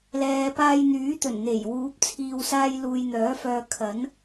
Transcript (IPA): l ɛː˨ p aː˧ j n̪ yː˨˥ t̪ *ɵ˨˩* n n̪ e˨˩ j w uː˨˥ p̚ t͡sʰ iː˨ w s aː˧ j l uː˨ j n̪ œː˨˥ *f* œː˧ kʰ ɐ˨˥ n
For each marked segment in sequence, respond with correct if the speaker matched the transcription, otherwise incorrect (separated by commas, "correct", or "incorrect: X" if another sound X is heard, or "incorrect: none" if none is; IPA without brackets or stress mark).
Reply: correct, correct